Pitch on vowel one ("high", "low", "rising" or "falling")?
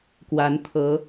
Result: rising